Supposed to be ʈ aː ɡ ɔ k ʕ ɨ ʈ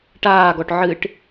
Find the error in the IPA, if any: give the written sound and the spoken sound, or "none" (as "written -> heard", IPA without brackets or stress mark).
k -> ʈ